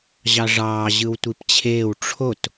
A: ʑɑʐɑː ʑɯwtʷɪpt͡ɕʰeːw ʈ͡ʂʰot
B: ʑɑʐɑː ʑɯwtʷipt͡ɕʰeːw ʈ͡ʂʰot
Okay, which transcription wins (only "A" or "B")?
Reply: B